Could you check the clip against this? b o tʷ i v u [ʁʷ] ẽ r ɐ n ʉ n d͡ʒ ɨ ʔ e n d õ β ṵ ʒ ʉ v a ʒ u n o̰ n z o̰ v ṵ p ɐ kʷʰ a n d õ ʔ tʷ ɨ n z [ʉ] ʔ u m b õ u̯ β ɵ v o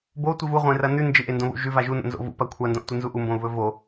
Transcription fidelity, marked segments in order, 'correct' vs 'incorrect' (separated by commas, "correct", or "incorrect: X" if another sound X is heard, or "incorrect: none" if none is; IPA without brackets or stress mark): correct, incorrect: u